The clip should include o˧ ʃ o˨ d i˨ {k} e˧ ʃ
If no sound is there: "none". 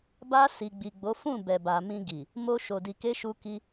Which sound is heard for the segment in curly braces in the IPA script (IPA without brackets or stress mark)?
k